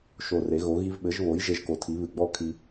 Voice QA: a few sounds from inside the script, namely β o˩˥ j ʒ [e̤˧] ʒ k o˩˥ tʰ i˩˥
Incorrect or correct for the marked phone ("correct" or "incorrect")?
incorrect